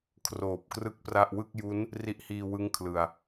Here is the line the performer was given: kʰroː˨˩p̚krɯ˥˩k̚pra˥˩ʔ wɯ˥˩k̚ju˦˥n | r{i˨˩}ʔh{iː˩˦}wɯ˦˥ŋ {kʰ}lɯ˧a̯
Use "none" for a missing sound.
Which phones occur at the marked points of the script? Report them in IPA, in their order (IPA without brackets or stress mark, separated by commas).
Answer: i˦˥, iː˧, kʰ